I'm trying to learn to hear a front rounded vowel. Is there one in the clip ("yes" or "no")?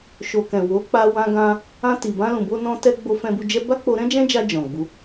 no